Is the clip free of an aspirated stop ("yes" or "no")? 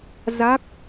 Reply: yes